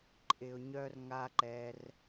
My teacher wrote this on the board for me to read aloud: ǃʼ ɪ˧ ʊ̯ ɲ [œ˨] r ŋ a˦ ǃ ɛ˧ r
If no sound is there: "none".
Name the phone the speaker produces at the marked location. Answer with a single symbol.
œ˦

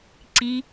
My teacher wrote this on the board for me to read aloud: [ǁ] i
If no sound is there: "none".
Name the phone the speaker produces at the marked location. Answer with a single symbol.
ǀ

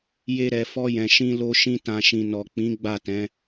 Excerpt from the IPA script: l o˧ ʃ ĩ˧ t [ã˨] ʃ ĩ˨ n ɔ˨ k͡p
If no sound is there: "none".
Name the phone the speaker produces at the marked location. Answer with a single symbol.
ã˨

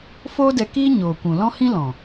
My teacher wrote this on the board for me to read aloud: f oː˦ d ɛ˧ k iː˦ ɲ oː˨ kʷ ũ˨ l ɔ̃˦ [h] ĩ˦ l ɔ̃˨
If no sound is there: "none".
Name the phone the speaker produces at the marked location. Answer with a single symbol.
h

